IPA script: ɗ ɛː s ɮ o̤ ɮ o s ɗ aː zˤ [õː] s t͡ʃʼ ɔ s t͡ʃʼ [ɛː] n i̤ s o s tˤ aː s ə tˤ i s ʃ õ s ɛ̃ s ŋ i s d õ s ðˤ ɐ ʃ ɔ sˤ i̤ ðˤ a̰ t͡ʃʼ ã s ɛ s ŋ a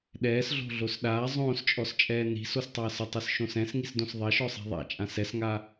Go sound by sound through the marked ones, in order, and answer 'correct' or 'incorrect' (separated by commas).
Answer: correct, correct